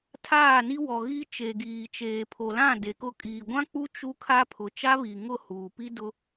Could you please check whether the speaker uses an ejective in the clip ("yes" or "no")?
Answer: yes